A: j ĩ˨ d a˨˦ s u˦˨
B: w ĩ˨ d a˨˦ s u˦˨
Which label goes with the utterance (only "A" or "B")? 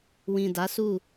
B